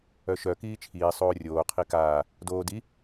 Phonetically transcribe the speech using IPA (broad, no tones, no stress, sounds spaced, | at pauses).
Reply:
œ ʃ œ k iː t͡ʃʰ iː sˤ oː rʲ oː qʰ i k aː | d oː d i